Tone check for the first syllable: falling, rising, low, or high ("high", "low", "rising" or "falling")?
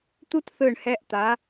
high